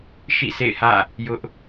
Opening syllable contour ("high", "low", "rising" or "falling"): falling